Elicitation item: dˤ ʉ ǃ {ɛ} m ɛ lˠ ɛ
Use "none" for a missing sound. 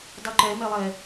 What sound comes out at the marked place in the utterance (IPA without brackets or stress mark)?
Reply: ɛ